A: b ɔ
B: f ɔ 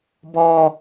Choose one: A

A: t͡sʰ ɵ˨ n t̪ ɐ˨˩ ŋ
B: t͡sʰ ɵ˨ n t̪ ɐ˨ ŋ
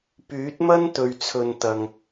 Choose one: B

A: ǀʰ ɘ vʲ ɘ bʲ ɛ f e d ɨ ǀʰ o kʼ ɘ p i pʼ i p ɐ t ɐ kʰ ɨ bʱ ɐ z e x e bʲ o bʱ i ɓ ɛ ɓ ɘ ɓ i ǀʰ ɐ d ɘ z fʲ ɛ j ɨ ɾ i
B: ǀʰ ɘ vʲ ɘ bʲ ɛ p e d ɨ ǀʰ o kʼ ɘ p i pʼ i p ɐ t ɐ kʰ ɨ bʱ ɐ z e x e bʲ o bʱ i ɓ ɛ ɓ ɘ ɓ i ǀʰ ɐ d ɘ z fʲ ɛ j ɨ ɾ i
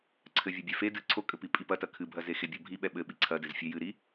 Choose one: A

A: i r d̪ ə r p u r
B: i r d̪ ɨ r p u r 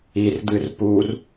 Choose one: B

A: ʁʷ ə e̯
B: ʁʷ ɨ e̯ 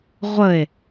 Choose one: A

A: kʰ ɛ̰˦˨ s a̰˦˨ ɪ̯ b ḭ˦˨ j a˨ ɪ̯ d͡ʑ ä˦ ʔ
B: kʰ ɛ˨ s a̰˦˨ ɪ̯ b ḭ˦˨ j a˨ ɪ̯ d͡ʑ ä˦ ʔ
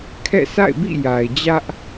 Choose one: A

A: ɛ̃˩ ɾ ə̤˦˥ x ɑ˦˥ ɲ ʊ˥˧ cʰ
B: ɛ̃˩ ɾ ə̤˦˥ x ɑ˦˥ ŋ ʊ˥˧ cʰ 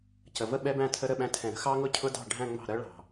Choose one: B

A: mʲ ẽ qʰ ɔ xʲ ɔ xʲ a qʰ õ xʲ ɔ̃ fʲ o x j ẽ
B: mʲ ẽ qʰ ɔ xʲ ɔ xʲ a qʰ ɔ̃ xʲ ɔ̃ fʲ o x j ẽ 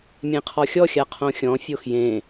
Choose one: A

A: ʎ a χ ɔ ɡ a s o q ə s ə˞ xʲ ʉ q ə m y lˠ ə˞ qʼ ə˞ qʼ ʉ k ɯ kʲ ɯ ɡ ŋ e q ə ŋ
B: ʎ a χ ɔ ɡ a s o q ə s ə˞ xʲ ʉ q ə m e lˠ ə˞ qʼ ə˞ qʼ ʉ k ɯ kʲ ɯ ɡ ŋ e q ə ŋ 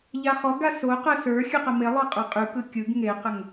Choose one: B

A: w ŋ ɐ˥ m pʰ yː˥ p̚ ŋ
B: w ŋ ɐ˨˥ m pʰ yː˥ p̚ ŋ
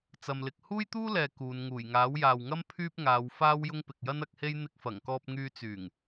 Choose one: A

